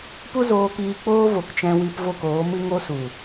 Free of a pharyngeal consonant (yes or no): yes